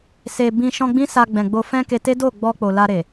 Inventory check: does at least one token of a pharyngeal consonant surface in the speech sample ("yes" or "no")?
no